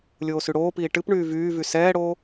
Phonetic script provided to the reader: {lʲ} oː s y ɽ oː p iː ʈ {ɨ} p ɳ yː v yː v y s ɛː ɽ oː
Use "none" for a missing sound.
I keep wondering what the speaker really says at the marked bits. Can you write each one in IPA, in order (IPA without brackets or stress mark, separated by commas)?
lʲ, ɨ